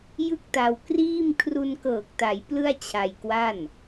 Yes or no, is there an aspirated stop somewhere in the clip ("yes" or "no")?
yes